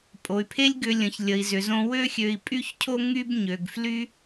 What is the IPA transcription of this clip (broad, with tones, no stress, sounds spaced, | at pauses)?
pʼ o˩ y̯ pʰ e˥ lʲ ɡ ʏ˧ lʲ ə̃˩ ç lʲ ə˩ i̯ z ʏ˩ z õ˧ w ø˥ xʲ ø˧ i̯ pʼ y˥ ç cʰ o˥ ŋ y˥ b ɲ ø˩ ɡ f l y˥